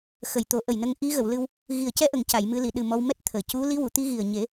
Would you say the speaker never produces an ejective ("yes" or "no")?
yes